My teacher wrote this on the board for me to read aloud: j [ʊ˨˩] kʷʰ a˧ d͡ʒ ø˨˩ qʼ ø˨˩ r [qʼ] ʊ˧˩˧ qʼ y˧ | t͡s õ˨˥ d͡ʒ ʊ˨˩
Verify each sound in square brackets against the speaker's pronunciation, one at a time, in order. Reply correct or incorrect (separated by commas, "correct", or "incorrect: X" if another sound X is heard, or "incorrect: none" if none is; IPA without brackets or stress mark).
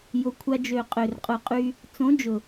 correct, correct